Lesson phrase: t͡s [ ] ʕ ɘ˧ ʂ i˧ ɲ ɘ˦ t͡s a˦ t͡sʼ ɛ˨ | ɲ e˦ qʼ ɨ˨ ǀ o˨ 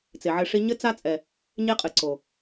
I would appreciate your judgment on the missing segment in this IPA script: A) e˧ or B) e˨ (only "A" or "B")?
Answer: B